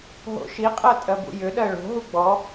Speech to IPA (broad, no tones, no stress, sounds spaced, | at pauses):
ɦ o̰ ʃ i qʼ ɜ tʼ ɜ b ṵ j ʏ ɗ ɜ ɭ o̤ ɦ u ɡ͡b ɔ